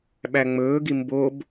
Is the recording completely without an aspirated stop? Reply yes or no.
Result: yes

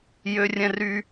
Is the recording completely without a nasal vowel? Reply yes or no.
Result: no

